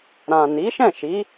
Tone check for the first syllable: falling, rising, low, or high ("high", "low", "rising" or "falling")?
low